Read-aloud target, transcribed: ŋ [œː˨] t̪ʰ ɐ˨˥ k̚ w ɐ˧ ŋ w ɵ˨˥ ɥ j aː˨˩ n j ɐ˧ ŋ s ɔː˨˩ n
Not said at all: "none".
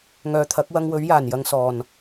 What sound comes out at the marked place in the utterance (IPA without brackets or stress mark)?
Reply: œː˨